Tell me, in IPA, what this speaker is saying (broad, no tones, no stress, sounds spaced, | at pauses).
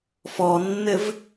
f ɔ nː ɘ v